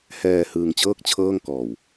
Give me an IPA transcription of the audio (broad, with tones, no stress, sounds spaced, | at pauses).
h ɛː˧ h ɯː˧ ŋ t͡ɕ ɤː˥˩ k̚ t͡ɕʰ ɤː˥˩ ŋ k ɔː˨˩ w